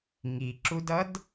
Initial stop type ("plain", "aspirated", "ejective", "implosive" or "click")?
click